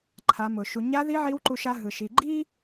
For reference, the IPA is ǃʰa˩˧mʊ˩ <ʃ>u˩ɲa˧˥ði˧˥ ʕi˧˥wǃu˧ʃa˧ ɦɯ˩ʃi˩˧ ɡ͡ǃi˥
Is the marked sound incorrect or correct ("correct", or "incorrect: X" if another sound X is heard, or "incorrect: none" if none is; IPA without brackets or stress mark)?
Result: correct